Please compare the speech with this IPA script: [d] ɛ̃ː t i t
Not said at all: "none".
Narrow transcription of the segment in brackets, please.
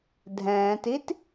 dʱ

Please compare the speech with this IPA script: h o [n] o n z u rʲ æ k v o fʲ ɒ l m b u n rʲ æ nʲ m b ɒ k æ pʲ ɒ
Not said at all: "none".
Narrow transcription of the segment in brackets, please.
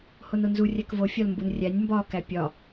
n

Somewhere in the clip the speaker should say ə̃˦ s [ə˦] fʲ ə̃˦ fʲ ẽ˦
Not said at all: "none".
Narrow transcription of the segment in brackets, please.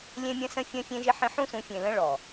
ə̃˦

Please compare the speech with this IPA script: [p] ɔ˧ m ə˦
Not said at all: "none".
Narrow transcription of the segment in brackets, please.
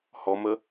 h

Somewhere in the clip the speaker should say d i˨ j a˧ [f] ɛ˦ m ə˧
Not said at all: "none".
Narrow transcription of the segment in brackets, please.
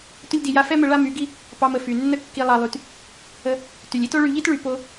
f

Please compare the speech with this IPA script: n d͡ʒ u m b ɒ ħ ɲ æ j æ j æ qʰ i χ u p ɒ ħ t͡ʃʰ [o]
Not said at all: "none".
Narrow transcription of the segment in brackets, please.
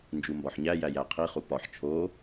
o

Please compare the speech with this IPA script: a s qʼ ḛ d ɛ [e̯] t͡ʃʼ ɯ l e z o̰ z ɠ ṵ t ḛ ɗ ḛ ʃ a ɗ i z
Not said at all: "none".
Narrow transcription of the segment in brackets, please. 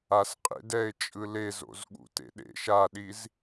e̯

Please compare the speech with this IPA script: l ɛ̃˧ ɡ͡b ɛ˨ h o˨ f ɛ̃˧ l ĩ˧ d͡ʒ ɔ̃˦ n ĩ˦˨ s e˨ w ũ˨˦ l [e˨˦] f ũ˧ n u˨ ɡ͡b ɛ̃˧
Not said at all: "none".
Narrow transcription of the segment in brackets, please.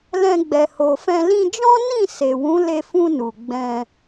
e˧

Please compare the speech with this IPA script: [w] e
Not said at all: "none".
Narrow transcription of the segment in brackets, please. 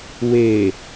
w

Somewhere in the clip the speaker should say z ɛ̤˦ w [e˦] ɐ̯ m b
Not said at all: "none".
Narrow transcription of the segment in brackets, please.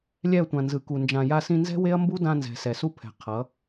e˦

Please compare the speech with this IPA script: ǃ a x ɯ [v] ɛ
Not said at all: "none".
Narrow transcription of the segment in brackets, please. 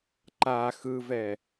v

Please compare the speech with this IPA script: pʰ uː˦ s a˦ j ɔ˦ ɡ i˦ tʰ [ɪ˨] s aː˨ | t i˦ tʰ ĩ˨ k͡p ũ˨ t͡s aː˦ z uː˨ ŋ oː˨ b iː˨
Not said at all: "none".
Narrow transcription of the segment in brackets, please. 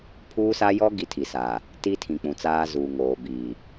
i˨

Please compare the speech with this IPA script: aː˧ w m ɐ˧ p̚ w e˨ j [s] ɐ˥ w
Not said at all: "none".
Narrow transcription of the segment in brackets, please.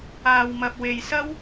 s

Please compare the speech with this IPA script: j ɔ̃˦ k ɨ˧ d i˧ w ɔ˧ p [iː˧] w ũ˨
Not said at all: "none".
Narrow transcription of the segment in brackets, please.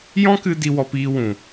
iː˧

